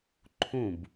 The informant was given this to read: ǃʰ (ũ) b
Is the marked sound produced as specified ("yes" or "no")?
yes